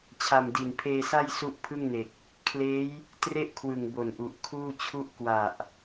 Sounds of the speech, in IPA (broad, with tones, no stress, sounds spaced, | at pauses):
t͡ɕʰ a˨˩ m d i˨˩ n pʰ eː˧ s a˥˩ j s u˦˥ ʔ pʰ ɯ˥˩ ŋ n e˨˩ k̚ | kʰ l eː˦˥ j | t r e˥˩ ʔ kʰ w ɯ˨˩ ŋ b o˨˩ n ʔ u˨˩ ʔ kʰ uː˥˩ t͡ɕʰ u˥˩ ʔ k w a˨˩ ʔ